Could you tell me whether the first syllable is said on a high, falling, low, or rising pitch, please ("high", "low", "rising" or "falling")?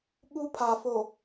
high